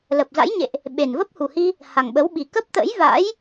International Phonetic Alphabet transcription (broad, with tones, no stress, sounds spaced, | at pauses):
l ə˨˩ p̚ z a̰˧˥ j ɲ ḛ˧˨ ʔ | ɓ e˨˩ n v ə˦˥ p̚ h u˨˩ h i˧ | h a˨˩ ŋ ɓ ə˨˦ w ɓ i˨˩ k ə˦˥ p̚ t̪ ə̰˧˥ j v a̰˧˥ j